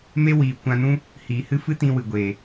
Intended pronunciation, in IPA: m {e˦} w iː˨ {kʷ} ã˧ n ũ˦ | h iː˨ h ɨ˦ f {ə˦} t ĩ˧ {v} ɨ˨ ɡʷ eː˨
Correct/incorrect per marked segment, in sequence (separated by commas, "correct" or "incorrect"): correct, correct, incorrect, incorrect